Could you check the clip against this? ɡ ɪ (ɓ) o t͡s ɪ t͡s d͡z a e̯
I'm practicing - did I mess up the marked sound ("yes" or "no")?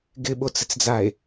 no